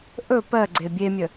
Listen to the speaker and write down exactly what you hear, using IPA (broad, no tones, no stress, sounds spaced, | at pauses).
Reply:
ʔ ɵ p ɜ ɡ͡ǀ e bʲ e mʲ ə